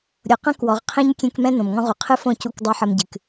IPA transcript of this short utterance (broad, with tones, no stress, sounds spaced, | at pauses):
ɾʲ o˨ q ɐ̃˦ k w ɔ˨ ʁ qʰ ẽ˦ ɲ kʲ ẽ˦ k m ɛ̃˦ n õ˨ m ŋ ɔ̃˦ ʁ u˨ qʰ ɨ˦ f õ˦˨ c u˦ k dˤ o˦ ħ ɐ˦ m ɟ ɨ˨ k